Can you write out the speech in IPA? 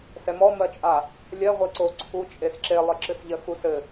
s ɛ m ɔ m ɜ t͡ʃʼ a | lʲ ɜ ʁʷ e ǀ o ǀʰ u t͡ʃʼ e s ǁ e lˠ ɘ ǁ ɨ s ʎ ɜ x u s ɘ

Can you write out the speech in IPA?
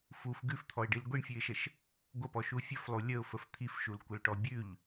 f u f ɡ ʉ f t̪ʰ ɔ ɪ̯ ɖ i l ɡʷ i ɳ fʲ ʉ ɪ̯ ʃ ə ʃ | ɡʷ ə p ɔ ʃ u fʲ ə f lˠ u lʲ ə ʊ̯ f ə f t̪ʰ i f ʃ u l kʷ ə l ʈ ɔ bʲ ʉ ʎ

